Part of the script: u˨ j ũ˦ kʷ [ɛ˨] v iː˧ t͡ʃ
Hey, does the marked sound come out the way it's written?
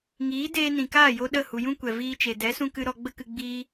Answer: yes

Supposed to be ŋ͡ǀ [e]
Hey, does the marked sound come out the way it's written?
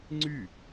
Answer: no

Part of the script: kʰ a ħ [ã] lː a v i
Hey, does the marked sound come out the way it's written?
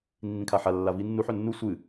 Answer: no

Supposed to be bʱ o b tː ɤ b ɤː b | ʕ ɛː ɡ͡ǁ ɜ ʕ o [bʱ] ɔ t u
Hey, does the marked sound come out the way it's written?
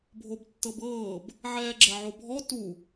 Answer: yes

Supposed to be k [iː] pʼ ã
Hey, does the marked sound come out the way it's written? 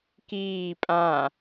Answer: yes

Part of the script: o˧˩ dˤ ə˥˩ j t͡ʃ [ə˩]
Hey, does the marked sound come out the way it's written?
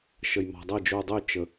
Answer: yes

